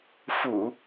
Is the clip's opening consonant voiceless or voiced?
voiceless